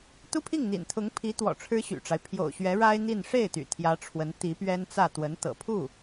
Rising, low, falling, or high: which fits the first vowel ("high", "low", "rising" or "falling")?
high